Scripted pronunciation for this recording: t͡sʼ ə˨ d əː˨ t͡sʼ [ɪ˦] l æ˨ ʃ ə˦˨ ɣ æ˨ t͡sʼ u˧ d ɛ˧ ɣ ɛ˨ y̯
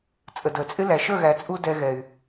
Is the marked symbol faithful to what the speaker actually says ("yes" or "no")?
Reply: yes